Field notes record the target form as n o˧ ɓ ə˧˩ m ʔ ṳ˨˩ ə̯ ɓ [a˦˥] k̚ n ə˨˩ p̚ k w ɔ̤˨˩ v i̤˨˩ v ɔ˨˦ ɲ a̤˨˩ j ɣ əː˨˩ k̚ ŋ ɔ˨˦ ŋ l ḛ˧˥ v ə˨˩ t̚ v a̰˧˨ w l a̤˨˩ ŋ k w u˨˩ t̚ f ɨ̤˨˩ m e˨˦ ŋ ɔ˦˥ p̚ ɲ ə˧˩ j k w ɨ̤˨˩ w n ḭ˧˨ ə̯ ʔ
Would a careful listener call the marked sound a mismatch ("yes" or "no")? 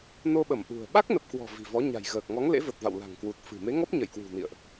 no